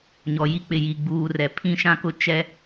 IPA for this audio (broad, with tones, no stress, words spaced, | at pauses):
ɲɔ˨ji˦k͡pɪ˨ ji˨ɡ͡buː˨rɛ˨ pʰĩ˦ʃã˦kʊ˦ t͡ʃɛ˦